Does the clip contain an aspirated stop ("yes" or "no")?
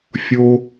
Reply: no